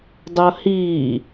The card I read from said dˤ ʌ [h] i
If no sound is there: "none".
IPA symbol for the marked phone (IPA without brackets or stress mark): h